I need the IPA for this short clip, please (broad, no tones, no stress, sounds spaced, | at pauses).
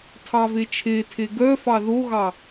tʰ ɑ v e t͡ʃʰ e tʰ e ɡ œ f ɑ ð o ɣ ɑ